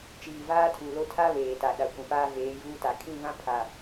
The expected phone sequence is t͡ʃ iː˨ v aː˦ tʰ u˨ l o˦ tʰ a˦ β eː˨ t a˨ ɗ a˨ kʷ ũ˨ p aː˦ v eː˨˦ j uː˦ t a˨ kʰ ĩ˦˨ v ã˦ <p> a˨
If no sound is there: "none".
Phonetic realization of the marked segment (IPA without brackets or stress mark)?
pʰ